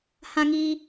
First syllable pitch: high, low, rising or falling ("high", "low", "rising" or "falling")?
high